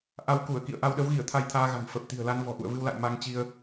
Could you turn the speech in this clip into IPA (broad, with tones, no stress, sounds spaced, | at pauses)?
ʔ a˧ w k u˧˩ ə̯ k ḭ˧˨ ə̯ ʔ a˧ w ɗ ə˨˦ w ɣ i˧˩ ə̯ t̪ʰ a˧ j t̪ʰ aː˧ ɣ a̤˨˩ n f ə˨˩ p̚ t̪ i̤˨˩ ə̯ l a˧ n v ɔ̤˨˩ ʔ ṵ˧˨ ə̯ v ɨ˧ w l a̰˧˨ j m a˧ ŋ t͡ɕ i˧ ə̯